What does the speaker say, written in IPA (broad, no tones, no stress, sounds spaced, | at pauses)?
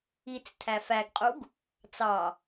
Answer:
i t͡s tʰ æ f æ ɡ qʼ u ɡ | t͡s ɑ